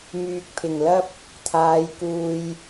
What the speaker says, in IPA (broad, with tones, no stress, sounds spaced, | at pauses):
m yː˨ k̚ pʰ ɪ˨˩ ŋ l ɐ˥ p̚ | t̪ʰ aː˨˧ j k uː˨ j